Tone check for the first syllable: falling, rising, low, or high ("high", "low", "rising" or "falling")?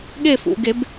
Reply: falling